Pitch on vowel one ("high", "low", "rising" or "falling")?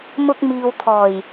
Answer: high